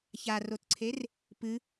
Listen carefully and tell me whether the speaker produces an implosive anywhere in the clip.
no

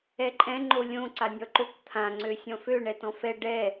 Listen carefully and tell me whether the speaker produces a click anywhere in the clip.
yes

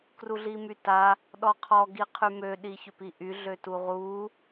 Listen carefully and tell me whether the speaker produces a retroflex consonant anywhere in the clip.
no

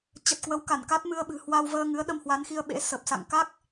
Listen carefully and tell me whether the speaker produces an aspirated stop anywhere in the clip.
no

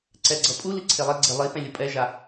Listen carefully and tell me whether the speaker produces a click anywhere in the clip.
yes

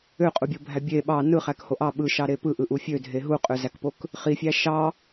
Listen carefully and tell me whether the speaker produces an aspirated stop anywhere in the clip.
no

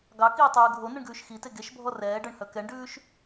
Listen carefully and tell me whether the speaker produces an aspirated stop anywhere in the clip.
no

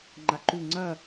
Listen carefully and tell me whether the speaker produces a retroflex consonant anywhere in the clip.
no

